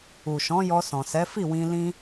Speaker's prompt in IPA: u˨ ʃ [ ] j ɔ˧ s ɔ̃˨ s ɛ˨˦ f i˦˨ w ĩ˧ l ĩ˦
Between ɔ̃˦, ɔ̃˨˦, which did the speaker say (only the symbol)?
ɔ̃˨˦